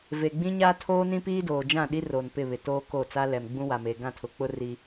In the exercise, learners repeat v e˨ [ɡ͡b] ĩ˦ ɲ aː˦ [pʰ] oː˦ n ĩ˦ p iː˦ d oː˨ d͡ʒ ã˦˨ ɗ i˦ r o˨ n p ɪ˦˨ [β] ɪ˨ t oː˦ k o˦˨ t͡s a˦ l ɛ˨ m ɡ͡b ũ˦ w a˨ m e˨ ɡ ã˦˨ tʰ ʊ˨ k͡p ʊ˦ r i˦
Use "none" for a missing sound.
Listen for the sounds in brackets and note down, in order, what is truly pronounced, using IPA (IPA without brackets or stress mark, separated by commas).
ɡ͡b, tʰ, β